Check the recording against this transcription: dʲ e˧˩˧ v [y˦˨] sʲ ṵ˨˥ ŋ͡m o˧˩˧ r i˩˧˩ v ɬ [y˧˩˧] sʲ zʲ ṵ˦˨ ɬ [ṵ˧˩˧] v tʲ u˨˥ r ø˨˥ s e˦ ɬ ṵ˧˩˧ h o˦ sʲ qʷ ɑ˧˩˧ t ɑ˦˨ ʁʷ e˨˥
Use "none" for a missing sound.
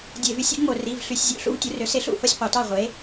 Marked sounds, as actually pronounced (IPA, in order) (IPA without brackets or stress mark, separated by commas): y˦, y˧˩˧, ṵ˦